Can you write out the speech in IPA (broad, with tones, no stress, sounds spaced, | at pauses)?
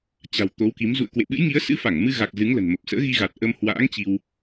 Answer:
t͡ɕ a̤˨˩ w t̪ o˨˦ w k i˨˦ m z ṵ˧˨ ə̯ k w ḛ˧˨ ɓ ɨ̰˧˥ j ŋ i˨˦ ə̯ s ɨ̰˧˥ f a˧˩ ŋ m ɨ˧ ɣ a˨˩ k̚ z ɨ˨˦ ŋ l ə̤˨˩ n m ə˨˩ p̚ s ə̰ː˧˥ ɣ i˧ ɣ a˨˩ t̚ ʔ ə˧ m h w a̰ː˧˥ ŋ t͡ɕ i˧ w